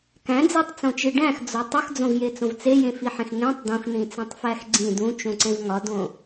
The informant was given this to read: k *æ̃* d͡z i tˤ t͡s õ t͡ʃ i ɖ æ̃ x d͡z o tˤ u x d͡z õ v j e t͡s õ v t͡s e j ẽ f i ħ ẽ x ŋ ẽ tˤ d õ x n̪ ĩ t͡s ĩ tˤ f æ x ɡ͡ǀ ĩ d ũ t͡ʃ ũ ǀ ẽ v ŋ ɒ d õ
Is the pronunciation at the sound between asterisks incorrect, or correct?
correct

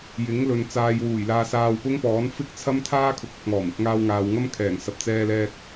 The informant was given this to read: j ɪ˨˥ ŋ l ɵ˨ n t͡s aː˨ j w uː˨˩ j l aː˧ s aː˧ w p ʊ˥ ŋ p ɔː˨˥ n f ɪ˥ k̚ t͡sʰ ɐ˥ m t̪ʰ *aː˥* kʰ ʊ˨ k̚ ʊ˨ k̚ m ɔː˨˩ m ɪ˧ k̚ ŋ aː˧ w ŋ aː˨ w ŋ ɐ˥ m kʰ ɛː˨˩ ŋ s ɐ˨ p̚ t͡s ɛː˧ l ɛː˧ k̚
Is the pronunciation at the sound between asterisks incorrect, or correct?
correct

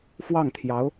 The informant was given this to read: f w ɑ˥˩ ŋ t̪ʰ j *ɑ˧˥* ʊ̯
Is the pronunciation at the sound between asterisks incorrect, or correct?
correct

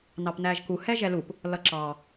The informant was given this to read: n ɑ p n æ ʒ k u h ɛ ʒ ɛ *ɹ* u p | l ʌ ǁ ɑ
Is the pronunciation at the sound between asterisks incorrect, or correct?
incorrect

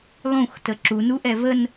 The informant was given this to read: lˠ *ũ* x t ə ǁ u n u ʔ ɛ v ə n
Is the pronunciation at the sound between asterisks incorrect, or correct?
correct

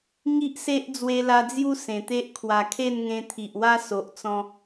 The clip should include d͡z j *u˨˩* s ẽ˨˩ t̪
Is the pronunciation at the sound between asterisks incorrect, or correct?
incorrect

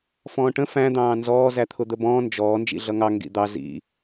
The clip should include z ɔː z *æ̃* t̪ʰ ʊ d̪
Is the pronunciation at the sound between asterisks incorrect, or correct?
incorrect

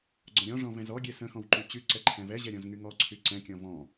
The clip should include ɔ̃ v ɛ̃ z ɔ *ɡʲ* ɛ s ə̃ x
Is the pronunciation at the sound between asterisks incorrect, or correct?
correct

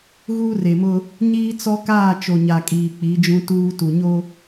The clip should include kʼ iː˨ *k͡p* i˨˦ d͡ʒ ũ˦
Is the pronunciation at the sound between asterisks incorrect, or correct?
correct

